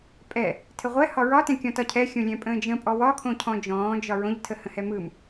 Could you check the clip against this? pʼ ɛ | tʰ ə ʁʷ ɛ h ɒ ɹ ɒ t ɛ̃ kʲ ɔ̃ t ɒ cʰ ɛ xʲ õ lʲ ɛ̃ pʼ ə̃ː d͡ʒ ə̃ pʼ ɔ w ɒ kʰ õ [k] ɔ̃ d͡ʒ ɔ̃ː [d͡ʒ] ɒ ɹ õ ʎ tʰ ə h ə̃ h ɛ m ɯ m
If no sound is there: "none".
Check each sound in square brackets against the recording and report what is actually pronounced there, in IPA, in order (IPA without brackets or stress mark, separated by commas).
cʰ, d͡ʒ